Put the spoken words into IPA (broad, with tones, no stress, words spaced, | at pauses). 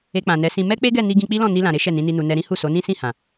e˧k͡pã˨nɛ˨˦sĩ˧ mɛ˦k͡pe˦ɡɛ˦˨ni˧ ɡĩ˧k͡pi˦lɔ̃˦˨ ni˧lã˨ɾe˨˦ ʃɛ˦˨nĩ˨˦ni˧nu˧ nɛ˧ɾĩ˦hu˦˨ so˨˦nĩ˦sĩ˦˨hã˨